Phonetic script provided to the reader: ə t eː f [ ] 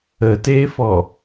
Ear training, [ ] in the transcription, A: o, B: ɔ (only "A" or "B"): B